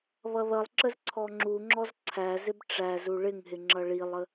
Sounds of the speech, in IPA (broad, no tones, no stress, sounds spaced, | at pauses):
β ʌ ð ʌ lˠ ǁ ə z ǀʰ ɔ ŋ͡ǁ u ŋ͡ǁ ɔ z ǀʰ æ z ɪ b ʈ͡ʂ æ z u ɭ ɪ ŋ ɦ ɪ ŋ͡ǁ ʌ ɭ i lˠ ə